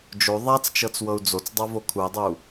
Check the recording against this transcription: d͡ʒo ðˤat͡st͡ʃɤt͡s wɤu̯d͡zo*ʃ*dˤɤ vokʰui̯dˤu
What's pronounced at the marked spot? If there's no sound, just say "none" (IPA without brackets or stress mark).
t͡s